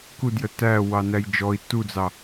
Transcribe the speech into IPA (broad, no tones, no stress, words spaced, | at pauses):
kudjə tæ wɑnæjd͡ʒɔi̯ tud͡zɑ